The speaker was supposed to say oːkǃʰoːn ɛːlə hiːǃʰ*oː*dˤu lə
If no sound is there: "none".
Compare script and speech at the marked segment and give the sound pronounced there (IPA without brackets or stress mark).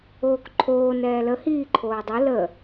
oː